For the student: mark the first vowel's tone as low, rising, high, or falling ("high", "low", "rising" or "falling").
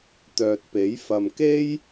low